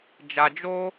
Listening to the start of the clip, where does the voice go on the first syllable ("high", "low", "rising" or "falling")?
low